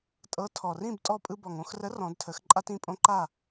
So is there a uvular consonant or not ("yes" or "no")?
no